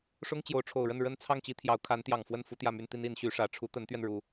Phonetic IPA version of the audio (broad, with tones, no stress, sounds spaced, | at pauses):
ʂ ʊ˥ ŋ t͡ɕ j o˧˥ ʊ̯ ʈ͡ʂʰ o˨˩ ʊ̯ ɻ ə˥˩ n ɻ ə˥ n t͡sʰ ɑ˥˩ ŋ t͡ɕ i˥ t̪ʰ j ɑ˧˥ ʊ̯ kʰ a˧˥ n t̪ j ɑ˨˩ ŋ f w ə˥˩ n f u˥ t̪ j ä˥˩ m y˥ n t̪ i˥ n i˧˥ n ɕ y˧˥ ʂ ä˧˥ ʈ͡ʂʰ u˧˥ t̪ ə˧˥ n t̪ ɥ ɛ˧ n ɻ u˧˥